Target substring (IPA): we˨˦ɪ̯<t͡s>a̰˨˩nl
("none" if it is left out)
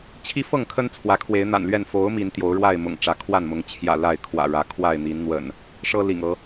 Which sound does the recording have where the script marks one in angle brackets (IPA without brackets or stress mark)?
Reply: n̪